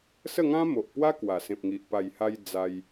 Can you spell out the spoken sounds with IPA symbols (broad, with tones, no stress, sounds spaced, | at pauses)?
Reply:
s ə˥˧ ŋ ã˦ m o˨ ʔ p w a˦ k w a˨˩ s ẽ˨ p̚ ŋ i˨ ʔ p a˨˩ j h a˧ j d͡z a˧ j